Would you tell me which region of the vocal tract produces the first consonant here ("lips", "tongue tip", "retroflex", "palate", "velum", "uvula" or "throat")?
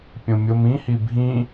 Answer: lips